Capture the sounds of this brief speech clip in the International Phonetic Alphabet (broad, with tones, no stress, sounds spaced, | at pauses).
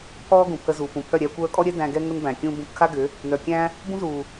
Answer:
pʰ ɔː˦ ɡ ũ˨ pʰ ə˧ z uː˨ p ũ˨ pʰ œ˦˨ ɾʲ æ˧ kʷ œː˧ kʼ ɔ˦ ɾʲ ɛ˦ d æ̃˧ ɡ ɛ˦ ŋ ə˦ n b æ̃˨ kʲ ũː˦ b ũ˧ p kʰ a˦ ɡ ʏ˨˦ | n œ˨ kʲ æ̃˦ | b ũ˦ z uː˨